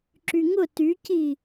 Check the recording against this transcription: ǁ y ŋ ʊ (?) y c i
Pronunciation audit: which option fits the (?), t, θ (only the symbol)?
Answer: t